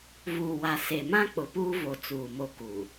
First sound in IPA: v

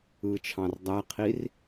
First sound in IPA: ɯ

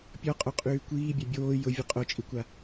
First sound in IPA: pʲ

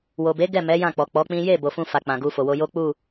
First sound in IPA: w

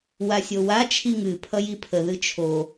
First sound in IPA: w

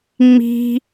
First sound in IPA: ŋ͡m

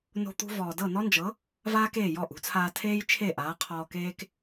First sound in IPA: n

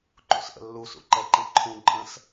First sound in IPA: ǃ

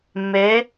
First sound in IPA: mː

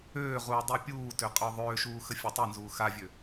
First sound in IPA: øː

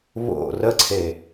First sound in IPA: β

